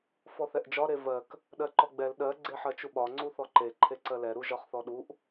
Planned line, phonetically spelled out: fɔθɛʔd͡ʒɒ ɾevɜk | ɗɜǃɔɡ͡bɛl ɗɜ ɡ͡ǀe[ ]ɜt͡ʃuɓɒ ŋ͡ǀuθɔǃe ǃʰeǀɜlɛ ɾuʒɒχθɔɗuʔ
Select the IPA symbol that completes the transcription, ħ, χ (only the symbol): ħ